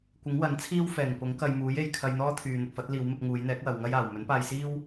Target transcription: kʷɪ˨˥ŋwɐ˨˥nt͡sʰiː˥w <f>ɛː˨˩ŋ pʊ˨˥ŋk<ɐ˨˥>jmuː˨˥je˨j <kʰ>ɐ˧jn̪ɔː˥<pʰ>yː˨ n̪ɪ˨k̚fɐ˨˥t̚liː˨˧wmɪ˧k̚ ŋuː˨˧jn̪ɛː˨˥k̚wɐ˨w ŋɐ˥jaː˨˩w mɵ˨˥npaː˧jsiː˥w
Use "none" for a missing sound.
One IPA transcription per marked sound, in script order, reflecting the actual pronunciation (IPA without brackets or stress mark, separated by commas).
f, ɐ˧, kʰ, t̪ʰ